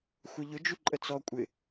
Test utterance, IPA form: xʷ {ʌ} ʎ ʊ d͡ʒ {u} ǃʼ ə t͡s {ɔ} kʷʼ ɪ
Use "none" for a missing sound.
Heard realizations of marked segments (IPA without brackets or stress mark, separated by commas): ʌ, u, ɔ